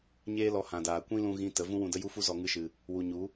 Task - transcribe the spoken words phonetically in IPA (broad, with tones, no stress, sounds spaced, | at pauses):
ɲ eː˦ l ɔ˧ h ã˨ d aː˨ kʷ ĩ˦ l ũ˧ ɣ ĩ˦ t ə˨˦ v ũ˦ w ũ˧ d ə˦ j u˦ f u˦ z ɔ˧ ŋ ɨ˦ ʃ ɨ˧ | w u˨ ɲ u˨˦